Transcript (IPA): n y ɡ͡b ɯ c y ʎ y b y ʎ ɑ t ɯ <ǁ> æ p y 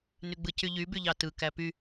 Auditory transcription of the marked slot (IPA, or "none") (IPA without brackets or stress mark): k